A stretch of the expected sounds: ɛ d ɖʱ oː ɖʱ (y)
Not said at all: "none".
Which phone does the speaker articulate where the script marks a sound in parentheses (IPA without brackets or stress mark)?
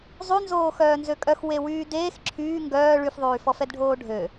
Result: ø